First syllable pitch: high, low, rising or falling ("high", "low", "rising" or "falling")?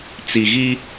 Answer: low